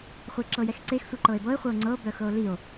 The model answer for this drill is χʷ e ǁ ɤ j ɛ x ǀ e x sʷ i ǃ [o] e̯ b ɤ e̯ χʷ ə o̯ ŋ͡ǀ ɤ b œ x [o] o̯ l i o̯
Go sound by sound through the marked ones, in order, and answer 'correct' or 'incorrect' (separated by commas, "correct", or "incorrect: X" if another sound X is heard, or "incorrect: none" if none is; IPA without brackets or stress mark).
incorrect: ɤ, incorrect: ɤ